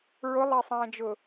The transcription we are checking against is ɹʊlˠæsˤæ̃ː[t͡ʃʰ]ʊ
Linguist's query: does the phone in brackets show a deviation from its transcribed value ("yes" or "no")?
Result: yes